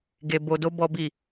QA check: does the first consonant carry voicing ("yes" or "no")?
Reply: yes